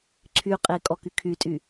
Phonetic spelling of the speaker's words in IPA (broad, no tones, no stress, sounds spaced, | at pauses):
ǀʰ y qʼ e kʼ ɔ k y kʰ y tʼ y